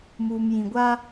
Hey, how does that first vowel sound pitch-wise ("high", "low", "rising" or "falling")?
low